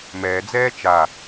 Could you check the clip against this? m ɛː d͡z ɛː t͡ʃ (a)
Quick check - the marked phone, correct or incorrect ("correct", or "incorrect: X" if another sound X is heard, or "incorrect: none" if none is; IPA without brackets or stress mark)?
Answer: correct